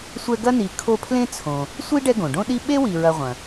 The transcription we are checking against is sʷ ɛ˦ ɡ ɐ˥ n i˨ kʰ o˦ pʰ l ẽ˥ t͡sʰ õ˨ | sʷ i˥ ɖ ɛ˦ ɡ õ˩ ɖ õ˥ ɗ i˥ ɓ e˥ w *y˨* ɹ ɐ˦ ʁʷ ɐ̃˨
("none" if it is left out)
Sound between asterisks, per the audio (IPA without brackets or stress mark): i˨